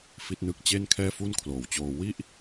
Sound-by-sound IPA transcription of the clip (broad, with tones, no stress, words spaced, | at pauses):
fi˦˥t̚nɯ˦˥k̚ t͡ɕe˥˩nkʰɛː˥˩ fu˥˩nkʰloː˨˩wt͡ɕoː˧ wi˥˩ʔ